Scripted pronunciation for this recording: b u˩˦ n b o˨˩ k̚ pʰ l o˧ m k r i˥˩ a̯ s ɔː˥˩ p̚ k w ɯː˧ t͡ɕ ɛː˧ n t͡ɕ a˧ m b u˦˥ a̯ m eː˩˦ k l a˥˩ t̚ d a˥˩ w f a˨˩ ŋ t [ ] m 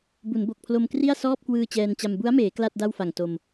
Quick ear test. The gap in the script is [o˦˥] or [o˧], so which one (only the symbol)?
o˧